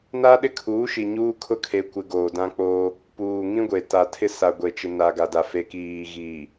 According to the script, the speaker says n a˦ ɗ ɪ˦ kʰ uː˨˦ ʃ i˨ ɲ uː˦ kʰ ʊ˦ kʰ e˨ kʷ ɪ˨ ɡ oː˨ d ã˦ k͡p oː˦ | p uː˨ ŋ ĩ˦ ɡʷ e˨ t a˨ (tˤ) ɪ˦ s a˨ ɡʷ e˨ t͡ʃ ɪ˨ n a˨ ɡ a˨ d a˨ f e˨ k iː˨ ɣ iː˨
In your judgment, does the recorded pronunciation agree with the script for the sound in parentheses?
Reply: no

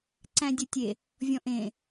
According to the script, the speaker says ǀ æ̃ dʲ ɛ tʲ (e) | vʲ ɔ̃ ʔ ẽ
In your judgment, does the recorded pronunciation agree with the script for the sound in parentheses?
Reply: yes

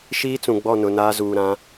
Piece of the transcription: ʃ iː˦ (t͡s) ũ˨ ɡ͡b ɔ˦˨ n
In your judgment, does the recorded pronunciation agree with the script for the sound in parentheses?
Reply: yes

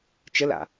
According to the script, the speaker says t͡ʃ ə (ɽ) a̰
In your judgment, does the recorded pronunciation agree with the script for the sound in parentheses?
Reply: no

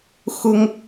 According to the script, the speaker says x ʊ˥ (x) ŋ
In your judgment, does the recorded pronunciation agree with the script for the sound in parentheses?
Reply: no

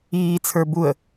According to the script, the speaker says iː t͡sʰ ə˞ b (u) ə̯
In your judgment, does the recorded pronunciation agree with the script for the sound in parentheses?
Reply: yes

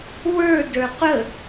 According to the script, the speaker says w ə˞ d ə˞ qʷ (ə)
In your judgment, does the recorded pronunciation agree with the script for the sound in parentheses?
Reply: yes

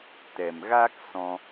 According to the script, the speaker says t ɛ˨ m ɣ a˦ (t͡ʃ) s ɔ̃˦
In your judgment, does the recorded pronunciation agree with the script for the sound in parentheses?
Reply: no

